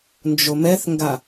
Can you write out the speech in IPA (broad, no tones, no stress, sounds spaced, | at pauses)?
n d͡ʒ o m ɛ θ ŋ ɡ a